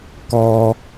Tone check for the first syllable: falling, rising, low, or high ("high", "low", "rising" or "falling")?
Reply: low